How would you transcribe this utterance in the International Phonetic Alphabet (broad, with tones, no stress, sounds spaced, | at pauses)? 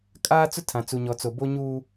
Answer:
kʼ aː˦ t͡s ʊ˦ tʰ ã˨ t͡s u˨ ɲ ɔ˨ t͡s o˨ b o˦ ɲ uː˦